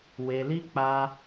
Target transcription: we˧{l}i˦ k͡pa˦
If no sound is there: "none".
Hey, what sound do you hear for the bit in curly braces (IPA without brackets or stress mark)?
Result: l